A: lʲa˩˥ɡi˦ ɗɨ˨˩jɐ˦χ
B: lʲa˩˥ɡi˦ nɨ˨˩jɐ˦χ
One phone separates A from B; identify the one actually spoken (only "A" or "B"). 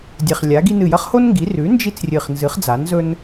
B